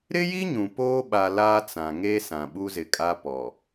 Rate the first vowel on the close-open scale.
close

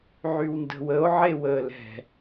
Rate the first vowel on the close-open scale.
close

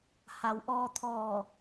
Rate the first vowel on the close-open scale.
open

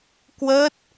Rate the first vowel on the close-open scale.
mid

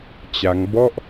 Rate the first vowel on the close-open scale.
open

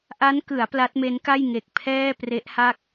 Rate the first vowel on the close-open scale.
open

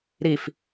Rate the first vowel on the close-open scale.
close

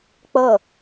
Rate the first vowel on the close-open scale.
mid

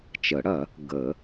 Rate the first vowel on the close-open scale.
mid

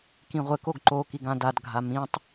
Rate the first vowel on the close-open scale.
close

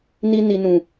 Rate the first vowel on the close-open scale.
close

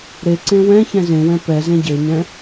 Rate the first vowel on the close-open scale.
mid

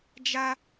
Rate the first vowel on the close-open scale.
open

